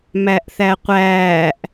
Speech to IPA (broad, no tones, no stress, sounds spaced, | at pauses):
m æ ʔ θ æ qʷ æː ʔ